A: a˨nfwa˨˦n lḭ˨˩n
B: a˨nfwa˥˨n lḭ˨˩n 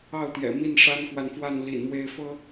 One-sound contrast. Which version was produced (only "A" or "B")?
B